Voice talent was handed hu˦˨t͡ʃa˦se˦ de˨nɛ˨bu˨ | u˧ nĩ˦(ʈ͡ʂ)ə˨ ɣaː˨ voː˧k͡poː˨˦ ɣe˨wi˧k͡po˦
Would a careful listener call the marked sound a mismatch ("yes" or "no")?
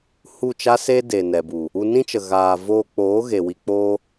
yes